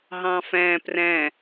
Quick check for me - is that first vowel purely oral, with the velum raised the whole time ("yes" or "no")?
no